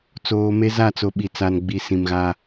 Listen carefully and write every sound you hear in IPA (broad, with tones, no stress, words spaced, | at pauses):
t͡soː˨me˦ za˦˨t͡so˨ ɓi˨t͡sa˨nɡ͡bi˨ sĩ˨mɣa˦